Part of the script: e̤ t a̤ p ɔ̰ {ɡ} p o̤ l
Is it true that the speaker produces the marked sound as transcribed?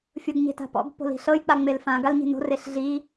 yes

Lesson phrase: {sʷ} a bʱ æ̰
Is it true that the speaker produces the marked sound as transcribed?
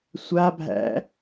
yes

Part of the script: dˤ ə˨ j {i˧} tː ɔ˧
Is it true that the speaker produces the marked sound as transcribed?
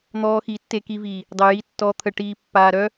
yes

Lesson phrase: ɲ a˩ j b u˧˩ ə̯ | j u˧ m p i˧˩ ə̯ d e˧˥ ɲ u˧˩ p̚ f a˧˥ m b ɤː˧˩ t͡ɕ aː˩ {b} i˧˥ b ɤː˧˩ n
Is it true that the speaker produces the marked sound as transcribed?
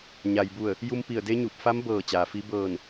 no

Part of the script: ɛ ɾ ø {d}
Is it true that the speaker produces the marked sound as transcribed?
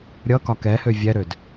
yes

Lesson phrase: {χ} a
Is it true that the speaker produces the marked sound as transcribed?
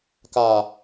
no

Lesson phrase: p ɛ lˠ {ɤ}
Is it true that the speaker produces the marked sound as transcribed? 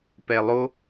no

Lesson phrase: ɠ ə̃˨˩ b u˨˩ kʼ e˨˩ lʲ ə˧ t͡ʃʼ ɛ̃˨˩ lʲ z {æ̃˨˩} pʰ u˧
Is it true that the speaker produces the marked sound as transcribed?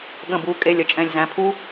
yes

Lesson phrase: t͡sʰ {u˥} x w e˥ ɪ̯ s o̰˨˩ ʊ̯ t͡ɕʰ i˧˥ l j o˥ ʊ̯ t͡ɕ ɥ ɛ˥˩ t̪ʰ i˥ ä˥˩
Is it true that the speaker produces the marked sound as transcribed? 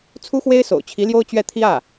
yes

